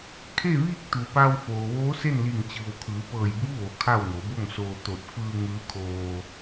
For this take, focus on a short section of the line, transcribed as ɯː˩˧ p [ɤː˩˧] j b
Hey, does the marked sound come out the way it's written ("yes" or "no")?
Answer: no